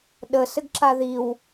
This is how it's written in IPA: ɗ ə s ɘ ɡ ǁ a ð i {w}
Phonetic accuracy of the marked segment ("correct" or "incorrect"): correct